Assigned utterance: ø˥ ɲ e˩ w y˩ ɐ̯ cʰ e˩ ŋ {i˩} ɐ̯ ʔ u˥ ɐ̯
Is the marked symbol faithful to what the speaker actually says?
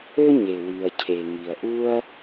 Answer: yes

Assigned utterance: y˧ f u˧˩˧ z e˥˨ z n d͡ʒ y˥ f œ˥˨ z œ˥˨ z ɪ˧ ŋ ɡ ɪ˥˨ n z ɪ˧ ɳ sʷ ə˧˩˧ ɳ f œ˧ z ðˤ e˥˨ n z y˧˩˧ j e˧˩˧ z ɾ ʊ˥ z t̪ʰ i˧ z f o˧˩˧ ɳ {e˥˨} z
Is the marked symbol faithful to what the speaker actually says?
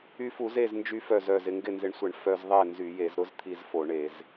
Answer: no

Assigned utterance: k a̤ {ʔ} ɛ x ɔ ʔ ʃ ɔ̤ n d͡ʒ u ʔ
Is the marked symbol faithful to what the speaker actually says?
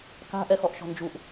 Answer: yes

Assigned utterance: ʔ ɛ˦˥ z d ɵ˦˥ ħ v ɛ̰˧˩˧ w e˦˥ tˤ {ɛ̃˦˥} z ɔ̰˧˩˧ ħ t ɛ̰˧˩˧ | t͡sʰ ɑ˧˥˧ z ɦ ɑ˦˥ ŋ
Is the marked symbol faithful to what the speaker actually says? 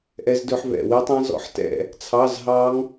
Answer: yes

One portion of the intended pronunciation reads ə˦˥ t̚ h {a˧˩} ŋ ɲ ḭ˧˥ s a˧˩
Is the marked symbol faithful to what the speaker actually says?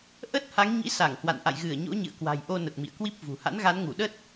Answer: no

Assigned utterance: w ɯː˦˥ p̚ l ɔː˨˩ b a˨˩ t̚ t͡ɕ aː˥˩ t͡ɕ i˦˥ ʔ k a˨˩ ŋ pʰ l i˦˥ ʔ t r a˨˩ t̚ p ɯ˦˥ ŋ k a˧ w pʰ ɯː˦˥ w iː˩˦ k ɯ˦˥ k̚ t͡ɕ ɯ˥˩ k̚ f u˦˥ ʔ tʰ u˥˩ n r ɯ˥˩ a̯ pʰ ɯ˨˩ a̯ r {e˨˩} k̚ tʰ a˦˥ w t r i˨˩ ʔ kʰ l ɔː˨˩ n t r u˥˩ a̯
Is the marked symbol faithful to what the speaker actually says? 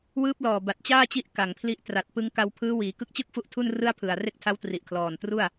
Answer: no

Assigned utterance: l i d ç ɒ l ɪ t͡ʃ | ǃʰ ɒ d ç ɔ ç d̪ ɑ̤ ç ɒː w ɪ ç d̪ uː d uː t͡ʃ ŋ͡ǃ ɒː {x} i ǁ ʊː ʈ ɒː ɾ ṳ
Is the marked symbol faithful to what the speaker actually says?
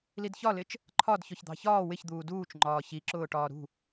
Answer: no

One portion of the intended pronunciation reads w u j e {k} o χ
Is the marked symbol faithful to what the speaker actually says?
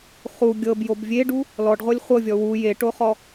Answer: no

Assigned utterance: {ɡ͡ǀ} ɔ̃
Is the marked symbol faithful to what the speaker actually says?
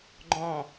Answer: no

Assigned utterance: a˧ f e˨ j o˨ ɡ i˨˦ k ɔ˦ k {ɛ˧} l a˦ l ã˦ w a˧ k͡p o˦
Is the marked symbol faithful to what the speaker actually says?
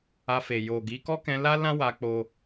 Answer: no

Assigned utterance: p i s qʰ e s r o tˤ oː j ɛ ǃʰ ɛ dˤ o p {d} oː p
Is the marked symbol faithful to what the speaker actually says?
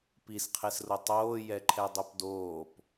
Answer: yes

